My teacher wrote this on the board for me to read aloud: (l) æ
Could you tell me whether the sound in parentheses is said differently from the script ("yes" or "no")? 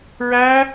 yes